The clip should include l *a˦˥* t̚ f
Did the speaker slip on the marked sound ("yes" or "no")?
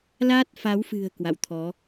no